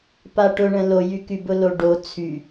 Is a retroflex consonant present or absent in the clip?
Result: present